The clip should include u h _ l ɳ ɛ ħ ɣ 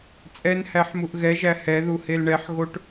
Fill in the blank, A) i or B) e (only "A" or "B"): B